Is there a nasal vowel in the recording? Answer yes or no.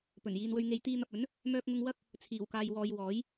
no